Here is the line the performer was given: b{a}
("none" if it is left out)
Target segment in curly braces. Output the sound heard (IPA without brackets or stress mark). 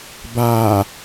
a